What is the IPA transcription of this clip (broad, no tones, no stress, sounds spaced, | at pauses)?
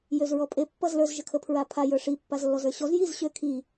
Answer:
j ø z ɹ ɔ pʼ e pː ʌ z l ə˞ z ʒ ə kʰ ə pʰ ɹ a pʰ a j ə˞ ʂ i pː a z lː ɔ z ə˞ ɕ ɔ z j i z ɕ ø kʰ i